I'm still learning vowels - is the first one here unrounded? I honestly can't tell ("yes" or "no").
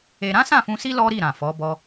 yes